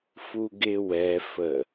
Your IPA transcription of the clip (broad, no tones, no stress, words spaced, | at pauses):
fuɡɪ wɛ fə